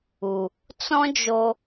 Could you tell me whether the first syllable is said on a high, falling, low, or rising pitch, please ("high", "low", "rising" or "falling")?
low